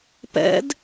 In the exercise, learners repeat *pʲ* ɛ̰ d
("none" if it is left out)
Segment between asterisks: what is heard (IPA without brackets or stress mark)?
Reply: p